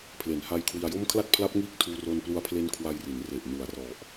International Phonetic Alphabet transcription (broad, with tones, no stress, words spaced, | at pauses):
pʰle˨˩nha˧j kʰwi˧a̯jo˥˩m kʰla˥˩t̚pʰla˦˥p̚ŋiː˦˥k̚ tʰuː˧ro˧nplu˧a̯ pʰle˦˥n kʰwa˧jri˩˦n re˨˩ʔnu˩˦a̯rɔ˨˩ʔ